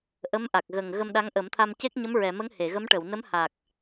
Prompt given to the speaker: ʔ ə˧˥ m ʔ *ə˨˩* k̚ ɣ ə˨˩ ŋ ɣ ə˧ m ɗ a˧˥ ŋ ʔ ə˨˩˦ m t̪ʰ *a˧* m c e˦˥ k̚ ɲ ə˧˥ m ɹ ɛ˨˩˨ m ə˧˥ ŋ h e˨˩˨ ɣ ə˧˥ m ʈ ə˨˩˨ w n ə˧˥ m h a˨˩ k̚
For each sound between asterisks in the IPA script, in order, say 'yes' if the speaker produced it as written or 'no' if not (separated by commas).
no, yes